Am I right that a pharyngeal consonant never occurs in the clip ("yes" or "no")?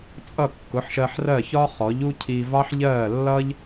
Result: no